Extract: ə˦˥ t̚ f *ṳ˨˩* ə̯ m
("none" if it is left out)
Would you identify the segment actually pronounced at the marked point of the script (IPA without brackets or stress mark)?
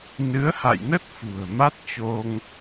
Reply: ṳ˨˩